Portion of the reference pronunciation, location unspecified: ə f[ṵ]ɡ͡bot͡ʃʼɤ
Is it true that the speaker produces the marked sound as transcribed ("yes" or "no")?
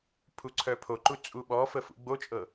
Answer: yes